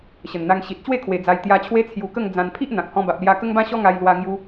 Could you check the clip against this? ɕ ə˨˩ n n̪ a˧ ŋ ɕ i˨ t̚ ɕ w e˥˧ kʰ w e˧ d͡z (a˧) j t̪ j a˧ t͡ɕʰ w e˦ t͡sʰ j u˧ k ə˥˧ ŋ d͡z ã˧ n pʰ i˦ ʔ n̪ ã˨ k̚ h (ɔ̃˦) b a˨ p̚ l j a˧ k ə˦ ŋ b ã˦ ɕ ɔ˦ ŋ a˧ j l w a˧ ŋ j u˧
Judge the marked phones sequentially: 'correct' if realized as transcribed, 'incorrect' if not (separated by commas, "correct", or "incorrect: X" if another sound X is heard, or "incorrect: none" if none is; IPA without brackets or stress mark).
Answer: correct, incorrect: ɔ̃˧